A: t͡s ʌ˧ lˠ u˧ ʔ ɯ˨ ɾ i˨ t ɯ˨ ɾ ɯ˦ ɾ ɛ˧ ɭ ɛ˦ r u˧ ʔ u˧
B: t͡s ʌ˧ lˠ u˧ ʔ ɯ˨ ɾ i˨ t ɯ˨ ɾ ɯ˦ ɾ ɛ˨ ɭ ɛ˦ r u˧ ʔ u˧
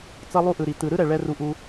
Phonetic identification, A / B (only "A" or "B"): B